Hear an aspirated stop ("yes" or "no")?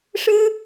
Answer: no